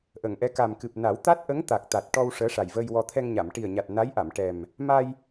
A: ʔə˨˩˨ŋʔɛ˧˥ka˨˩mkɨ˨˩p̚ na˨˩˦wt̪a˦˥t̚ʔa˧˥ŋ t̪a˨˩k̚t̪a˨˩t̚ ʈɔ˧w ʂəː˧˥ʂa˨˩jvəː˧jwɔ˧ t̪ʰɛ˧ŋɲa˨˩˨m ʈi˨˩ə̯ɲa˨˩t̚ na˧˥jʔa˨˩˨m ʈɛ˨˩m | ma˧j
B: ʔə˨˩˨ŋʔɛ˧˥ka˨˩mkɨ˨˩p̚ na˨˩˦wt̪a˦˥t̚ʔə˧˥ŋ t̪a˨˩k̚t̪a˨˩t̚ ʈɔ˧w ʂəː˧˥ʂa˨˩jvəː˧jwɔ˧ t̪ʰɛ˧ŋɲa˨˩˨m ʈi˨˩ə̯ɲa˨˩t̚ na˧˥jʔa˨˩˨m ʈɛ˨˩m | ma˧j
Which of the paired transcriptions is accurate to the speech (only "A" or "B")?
B